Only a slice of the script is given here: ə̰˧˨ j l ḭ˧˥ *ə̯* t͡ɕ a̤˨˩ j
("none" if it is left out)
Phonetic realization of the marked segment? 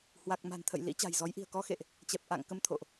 none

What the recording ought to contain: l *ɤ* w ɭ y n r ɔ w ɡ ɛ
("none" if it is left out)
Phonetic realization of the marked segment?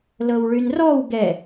ɤ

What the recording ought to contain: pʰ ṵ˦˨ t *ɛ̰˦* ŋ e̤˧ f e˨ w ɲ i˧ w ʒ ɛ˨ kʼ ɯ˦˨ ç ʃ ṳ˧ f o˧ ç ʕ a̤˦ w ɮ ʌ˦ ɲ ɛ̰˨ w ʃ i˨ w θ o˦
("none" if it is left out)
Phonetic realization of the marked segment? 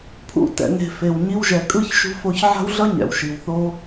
ɛ̰˧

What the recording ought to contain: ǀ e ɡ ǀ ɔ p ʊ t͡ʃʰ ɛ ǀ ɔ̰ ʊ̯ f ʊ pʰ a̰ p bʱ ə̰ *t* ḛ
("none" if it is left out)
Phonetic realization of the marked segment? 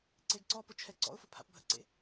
ǀ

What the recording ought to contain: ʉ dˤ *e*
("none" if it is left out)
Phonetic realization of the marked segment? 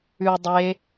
e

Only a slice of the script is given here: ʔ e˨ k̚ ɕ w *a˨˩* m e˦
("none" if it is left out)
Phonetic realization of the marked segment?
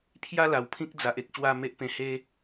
a˥˧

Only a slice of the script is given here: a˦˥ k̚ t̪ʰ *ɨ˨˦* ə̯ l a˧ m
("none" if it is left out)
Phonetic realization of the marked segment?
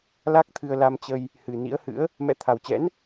ɨ˧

